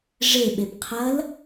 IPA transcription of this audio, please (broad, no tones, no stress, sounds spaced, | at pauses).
ʐ e ɓ e b qʰ ɐ l